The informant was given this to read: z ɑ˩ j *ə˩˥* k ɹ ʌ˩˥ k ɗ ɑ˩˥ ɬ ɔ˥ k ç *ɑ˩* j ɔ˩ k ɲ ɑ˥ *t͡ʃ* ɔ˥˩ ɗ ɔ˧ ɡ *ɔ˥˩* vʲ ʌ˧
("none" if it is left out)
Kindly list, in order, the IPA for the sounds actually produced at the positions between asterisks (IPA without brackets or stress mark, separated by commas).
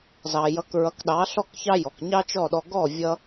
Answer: ʌ˩˥, ɑ˥, t͡ʃ, ɔ˥˩